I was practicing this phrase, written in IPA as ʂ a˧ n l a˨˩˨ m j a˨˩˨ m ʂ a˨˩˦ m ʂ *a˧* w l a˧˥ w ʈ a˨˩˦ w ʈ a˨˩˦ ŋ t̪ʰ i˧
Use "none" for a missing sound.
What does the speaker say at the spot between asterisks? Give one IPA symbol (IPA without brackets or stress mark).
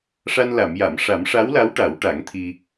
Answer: a˧˥